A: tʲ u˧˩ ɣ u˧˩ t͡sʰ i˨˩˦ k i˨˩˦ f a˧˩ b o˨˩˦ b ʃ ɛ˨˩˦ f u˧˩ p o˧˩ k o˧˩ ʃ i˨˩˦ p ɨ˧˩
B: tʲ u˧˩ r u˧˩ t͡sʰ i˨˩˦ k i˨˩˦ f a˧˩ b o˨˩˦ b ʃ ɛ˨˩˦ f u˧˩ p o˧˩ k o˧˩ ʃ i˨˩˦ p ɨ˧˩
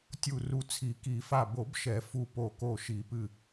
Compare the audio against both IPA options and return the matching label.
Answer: B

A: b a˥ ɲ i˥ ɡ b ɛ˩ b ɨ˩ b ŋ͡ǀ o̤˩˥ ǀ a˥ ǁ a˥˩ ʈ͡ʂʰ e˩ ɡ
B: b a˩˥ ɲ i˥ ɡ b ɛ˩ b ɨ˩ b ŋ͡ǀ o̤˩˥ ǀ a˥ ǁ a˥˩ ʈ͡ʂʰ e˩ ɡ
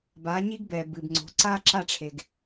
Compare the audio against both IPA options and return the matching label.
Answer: B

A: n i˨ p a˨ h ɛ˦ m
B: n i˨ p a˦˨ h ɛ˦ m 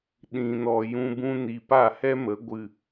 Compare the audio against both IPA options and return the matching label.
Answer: B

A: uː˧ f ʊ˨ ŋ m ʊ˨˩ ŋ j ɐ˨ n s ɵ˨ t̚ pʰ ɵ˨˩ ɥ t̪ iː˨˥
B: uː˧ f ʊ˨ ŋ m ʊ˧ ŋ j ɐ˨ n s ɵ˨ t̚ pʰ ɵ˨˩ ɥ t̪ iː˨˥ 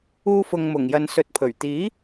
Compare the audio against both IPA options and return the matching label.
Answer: A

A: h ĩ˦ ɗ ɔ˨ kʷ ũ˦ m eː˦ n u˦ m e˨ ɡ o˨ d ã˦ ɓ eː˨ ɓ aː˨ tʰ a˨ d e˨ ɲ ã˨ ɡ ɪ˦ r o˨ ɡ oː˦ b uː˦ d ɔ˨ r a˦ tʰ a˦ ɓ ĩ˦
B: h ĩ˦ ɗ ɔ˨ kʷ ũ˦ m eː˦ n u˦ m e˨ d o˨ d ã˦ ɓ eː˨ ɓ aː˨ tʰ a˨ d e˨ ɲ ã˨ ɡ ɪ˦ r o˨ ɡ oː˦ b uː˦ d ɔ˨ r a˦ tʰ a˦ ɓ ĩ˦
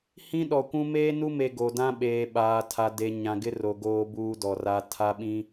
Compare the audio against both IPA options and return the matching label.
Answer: A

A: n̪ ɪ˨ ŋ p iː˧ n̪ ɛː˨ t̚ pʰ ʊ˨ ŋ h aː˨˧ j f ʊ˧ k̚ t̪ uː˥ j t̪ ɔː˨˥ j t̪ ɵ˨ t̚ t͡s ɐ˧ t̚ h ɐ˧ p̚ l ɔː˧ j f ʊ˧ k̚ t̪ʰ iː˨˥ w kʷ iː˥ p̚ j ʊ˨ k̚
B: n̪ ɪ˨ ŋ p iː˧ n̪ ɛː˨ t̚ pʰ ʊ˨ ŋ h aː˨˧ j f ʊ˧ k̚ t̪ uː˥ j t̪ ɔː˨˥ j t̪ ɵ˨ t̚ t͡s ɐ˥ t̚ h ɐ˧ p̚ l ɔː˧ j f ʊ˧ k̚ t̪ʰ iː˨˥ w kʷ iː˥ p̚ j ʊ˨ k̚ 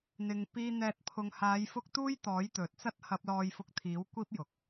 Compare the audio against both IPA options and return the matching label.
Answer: B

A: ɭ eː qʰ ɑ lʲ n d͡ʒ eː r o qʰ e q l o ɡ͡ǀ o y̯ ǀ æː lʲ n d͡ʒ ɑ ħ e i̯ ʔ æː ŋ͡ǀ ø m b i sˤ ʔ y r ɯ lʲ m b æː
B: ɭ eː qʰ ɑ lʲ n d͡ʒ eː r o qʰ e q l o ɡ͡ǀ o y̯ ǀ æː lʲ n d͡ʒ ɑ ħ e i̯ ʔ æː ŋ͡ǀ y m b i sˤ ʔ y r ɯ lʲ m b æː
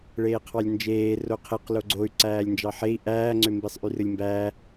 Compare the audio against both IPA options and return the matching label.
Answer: A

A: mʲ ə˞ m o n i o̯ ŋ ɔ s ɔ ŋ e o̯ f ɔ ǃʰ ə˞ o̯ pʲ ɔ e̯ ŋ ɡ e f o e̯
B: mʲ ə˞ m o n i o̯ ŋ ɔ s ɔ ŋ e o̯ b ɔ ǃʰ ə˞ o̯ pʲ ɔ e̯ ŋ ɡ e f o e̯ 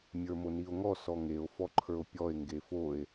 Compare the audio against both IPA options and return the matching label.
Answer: A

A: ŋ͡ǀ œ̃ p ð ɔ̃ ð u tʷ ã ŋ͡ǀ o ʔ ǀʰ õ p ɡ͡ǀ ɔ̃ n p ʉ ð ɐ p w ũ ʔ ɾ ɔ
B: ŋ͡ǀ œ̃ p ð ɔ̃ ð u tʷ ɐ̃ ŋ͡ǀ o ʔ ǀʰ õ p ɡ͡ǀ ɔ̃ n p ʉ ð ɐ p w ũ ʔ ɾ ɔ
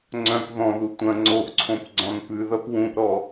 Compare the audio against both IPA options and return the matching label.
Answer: B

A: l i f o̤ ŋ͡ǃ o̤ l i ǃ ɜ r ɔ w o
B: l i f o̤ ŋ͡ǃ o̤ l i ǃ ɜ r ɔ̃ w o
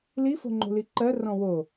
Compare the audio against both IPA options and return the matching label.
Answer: B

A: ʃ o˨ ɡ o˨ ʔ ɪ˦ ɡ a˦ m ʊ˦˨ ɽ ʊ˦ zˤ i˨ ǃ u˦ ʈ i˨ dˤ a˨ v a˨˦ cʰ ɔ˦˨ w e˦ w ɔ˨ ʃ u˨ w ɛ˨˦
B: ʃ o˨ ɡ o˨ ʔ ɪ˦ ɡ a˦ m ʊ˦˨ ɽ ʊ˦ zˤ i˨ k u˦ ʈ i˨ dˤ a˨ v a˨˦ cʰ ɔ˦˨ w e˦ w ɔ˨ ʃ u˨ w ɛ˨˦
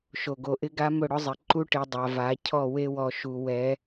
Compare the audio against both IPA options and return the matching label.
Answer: A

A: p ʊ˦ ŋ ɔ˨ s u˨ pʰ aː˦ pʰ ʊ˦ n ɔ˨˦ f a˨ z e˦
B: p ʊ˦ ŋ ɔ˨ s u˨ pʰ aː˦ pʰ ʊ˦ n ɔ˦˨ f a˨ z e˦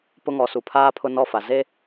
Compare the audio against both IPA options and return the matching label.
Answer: B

